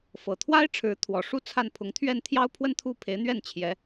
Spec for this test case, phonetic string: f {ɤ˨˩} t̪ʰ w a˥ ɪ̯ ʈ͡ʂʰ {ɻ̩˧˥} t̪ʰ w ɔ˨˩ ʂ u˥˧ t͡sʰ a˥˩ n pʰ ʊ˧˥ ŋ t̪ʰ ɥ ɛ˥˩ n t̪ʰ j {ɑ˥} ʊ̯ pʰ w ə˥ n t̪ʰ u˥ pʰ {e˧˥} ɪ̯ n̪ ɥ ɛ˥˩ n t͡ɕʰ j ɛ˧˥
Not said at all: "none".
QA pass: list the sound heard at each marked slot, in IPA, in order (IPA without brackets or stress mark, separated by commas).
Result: ɤ˨˩, ɻ̩˧˥, ɑ˥, e˧˥